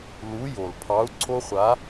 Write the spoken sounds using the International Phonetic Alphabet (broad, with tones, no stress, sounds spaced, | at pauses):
l u˨˥ j o˩ l pʰ ɑ˨˥ u̯ ǀʰ o˦ χʷ a˨˥